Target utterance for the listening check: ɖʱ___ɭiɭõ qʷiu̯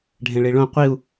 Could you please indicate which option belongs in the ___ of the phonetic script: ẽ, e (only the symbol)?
ẽ